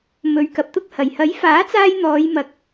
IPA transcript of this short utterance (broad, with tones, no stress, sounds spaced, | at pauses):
m ɵ˨˧ ɥ k ɐ˨ p̚ t̪ ʊ˥ k̚ h ɐ˨˩ j h ɐ˨˥ j f aː˨˥ t͡s aː˧ j n̪ ɔː˨˧ j m ɐ˨˥ k̚